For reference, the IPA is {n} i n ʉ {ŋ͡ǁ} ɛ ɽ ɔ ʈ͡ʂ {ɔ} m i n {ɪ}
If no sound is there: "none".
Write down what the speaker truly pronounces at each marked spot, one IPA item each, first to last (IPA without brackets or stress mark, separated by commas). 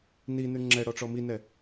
n, ŋ͡ǁ, ɔ, ɛ